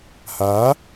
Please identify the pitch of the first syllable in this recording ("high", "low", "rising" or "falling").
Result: rising